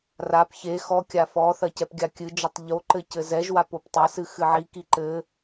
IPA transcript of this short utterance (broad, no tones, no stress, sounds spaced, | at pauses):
r a p ç e x ɔ kʲ a f ɔ θ ɐ c ɛ p ɡʲ a kʲ ɨ d͡ʒ ɔ tˤ ʎ o ǃ ɘ c ɘ z ɛ ʒ w a p o p tˤ ɐ s ɨ x ɨ ʕ i k i ǃ ɘ